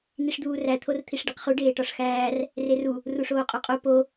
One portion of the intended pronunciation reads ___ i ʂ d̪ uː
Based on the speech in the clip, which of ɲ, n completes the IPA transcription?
n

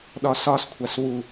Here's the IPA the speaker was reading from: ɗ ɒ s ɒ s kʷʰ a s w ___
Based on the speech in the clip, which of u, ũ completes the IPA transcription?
u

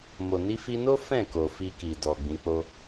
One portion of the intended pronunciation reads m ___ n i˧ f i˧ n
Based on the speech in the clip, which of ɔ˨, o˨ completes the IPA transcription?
o˨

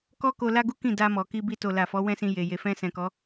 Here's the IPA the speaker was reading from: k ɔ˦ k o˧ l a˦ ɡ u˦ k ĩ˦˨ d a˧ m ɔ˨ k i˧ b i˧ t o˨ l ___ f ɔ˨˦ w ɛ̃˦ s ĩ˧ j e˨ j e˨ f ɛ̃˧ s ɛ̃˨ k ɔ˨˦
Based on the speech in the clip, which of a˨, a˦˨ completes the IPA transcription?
a˨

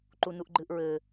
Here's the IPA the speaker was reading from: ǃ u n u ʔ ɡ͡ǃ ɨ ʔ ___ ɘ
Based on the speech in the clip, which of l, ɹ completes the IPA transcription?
ɹ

